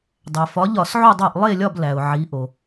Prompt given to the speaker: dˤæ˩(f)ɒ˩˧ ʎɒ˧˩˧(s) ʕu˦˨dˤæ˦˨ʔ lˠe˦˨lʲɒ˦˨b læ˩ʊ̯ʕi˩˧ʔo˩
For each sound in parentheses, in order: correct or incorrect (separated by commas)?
correct, correct